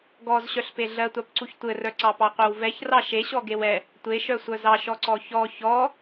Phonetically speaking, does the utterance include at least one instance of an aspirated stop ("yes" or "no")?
no